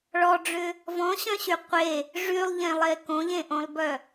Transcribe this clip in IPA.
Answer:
ɭ ɔ ɖ͡ʐ ʏ | v ɔ̃ ɕ œ̃ ɕ y qʷ e | ʐ y lˠ ʎ ẽ lˠ e k õ ʎ ẽ ʔ õ lˠ b œ

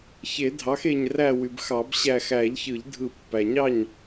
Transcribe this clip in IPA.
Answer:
ç e˨˩˦ dʱ ɑ˩˥ x e˧˩ ɲ r æ˧˩ w y˩ b x ɑ˨˩˦ b ɕ æ˧˩ x æ˨˩˦ ʎ ç ɯ˨˩˦ ʎ dʱ ɯ˨˩˦ pː æ˩ ɲ ɑ˥˩ ɲ

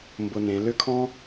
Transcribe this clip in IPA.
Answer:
m b ʊ˧ n ẽ˩˧ l ʏ˥ kʰ ɔ̃˥

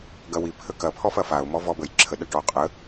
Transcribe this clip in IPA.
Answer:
ɡ ɐ w i pʰ ə k ɐ pʰ ɔ f ɐ f a ʊ̯ m ɔ v ɔ b ə j ǁʰ ə ɗ ɐ ʈ ɔ qʼ ə

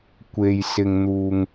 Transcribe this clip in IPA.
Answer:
kʷ e˧ j s ɪ˧ ŋ n̪ uː˧ ŋ

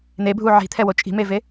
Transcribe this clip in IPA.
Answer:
n̪ e bʱ u ʕ i̤ t̪ʰ ɛ w o t͡ʃʼ i̤ m e v e

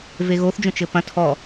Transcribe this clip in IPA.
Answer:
v e ɣ o θ d͡ʒ õ t͡ʃ ɘ p ɐ̃ tʰ ɔ

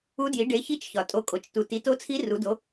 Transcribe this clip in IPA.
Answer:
u˧˥ d j i˩˥ ɖ e˩˥ ç i˧˥ t͡ʃ ç ɒ˩ tʼ o˩˥ kʼ o˩ t͡ʃ t u˩ t i˩˥ t o˧˥ t͡sʰ i˧˥ r u˩˥ d o˩˥

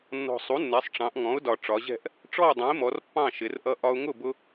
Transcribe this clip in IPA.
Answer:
nː ɔ̤˨˩ sˤ u˩˥ nː ɛ˩˧ sˤ ʈ͡ʂ ɑ̃˩˧ ʔ ŋ ɔ̃˩˥ ʊ̯ d ɒ˨˩ ʈ͡ʂ ɒ˩˧ ʑ ɛ̤˥˨ ʔ | ʈ͡ʂ ɔ˥˨ ʊ̯ dˤ ɛ̃˩˥ ɪ̯ m ɔ˩˧ r pː ɑ̃˥˨ ʃ ɪ˩˧ r ʔ ʌ˦ ʔ ɒ˦ ʊ̯ ŋ ʊ˥˨ b ʊ˦

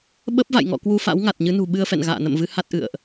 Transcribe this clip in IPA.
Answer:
ɓ ə˦˥ p̚ v a̰˧˨ j ŋ ɔ̰˧˨ k w u˧ f a̰˧˥ w ŋ a˨˩ t̚ ɲ ɨ˨˦ n ṳ˨˩ ɓ ɨ˧ ə̯ f ɛ̰˧˨ n ɣ a̰ː˧˨ n ə̰˧˨ m v ɨ˨˦ h a˦˥ t̚ ʔ ɨ̰˧˨ ə̯ ʔ

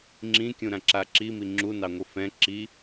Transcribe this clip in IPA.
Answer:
ŋ͡ǁ ĩ kʲ ũ ɾ ã ǁ a ǁ i m i ŋ͡ǁ u n ɑ ŋʷ ɨ f ɛ̃ ǁ i

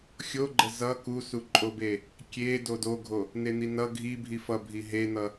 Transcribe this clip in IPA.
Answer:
xʲ o ɡ͡ǃ ə z ʌ k u s u ǃʼ o b e | kʲ e d o d o ɡʱ o | n e n̪ i n ʌ ɡʱ i bʱ i f ʌ bʱ i ɦ e n̪ ʌ

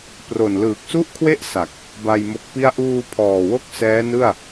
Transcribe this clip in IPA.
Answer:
p r o˨˩ n l ɯː˨˩ k̚ s u˥˩ ʔ kʰ w e˥˩ ʔ s a˨˩ k̚ | b a˧ j m o˦˥ k̚ p i˥˩ a̯ ʔ uː˧ pʰ ɔː˨˩ w o˦˥ k̚ s ɛː˦˥ n ɯ˥˩ a̯

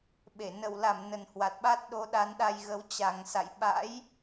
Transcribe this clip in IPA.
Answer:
ɓ e˧˩ n ə˧˩ w l a˧˩ m n ə˨˩ n h w a˨˩ t̚ ɓ a˦˥ t̚ ɗ o˨˦ ɗ a˨˦ n ɗ a˧ j ɣ ə˨˦ w t͡ɕ a˨˩ ŋ s a̰˧˨ j ɓ a̰˧˥ j

